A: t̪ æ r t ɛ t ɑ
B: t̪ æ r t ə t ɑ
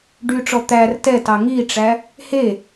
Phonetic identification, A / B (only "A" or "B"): A